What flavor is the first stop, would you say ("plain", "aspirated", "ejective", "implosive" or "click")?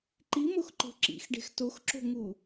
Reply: click